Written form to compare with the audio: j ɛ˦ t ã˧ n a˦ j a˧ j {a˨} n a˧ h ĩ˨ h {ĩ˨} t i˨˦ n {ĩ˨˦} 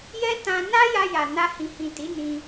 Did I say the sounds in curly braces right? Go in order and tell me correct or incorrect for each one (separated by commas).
correct, correct, incorrect